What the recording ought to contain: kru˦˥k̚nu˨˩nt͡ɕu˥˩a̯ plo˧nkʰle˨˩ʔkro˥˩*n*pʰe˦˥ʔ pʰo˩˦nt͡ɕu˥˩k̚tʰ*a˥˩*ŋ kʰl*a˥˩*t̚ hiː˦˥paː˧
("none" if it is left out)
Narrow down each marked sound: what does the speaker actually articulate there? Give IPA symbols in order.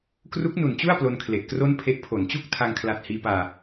n, a˧, a˨˩

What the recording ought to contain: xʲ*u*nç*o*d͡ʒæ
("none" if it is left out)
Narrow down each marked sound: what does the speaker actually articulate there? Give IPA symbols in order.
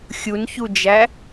u, u

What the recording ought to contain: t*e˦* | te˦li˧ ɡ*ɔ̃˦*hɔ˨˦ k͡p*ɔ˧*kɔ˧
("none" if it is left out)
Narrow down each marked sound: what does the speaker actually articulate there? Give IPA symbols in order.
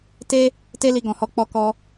e˦, ɔ̃˨, ɔ˧

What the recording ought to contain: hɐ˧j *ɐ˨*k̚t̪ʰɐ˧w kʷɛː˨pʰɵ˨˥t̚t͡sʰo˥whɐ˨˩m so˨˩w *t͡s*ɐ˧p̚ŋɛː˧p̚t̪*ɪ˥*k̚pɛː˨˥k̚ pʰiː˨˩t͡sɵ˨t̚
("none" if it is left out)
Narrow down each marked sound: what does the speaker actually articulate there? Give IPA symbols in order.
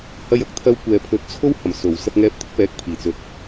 ɐ˨, s, ɪ˥

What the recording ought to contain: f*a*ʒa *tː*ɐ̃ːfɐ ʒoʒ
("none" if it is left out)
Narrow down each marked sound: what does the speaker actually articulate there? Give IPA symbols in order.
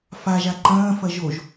a, ǃ

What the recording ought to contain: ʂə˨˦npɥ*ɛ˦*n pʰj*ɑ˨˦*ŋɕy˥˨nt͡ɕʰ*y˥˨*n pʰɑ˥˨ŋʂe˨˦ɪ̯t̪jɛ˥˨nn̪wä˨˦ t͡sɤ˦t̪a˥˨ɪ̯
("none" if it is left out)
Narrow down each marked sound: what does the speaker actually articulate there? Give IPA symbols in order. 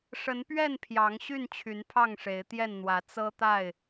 ɛ˥˨, ɑ˨˦, y˨˦

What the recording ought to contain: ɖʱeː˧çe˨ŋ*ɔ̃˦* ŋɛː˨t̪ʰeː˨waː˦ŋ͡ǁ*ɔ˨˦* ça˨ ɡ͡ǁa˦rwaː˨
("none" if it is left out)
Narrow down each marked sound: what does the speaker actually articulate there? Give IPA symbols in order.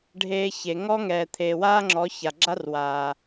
ɔ˦, ɔ˨˦

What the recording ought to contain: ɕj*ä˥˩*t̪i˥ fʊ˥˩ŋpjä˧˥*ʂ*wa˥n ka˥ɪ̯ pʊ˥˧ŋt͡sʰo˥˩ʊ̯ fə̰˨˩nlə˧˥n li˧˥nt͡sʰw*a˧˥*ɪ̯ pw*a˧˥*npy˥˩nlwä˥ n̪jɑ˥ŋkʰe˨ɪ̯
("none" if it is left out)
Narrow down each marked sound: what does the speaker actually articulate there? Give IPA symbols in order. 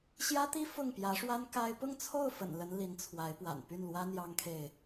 ä˥, ʂ, a˧˥, a̰˨˩

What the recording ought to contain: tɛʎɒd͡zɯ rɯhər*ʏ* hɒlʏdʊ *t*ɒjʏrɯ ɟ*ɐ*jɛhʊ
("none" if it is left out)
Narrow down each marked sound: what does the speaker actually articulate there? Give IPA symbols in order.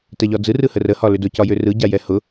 ə, c, a

